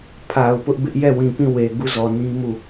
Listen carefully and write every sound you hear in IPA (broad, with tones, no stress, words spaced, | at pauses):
pʰa˨ʊ̯ pʊ˦ʔbɪ˦ʔ jɛ˦˨wĩ˨pĩ˦˨we˨ ɡu˦˨zɔ˨nĩ˦ mu˦˨